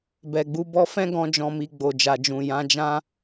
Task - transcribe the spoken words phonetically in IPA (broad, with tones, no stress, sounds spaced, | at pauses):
b ɛ˨ ɡ͡b u˨˦ b ɔ˧ f ɛ̃˦ ɡ ɔ̃˧ d͡ʒ ɔ̃˨ m i˨ ɡ͡b o˨ d͡ʒ a˨ d͡ʒ ũ˨ j ã˨˦ d͡ʒ ã˦